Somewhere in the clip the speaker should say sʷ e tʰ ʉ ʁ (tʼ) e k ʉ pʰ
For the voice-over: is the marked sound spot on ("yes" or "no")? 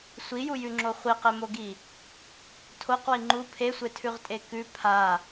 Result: yes